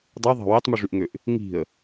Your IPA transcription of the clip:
dˤ ɯ ðˤ ɑ̤ w e tˤ m u ʐ y ʔ ŋ ø ʔ | ŋ i̤ ə̯

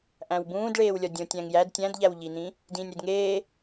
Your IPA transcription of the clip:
ʔ æ̃ w b ũː d ɭ eː w lʲ ɒ dʲ õ tʲ æ̃ ŋ j æ d tʲ æ̃ d ʎ æ w ʎ i n ĩ | d ĩː nʲ ɾ i d ŋ eː

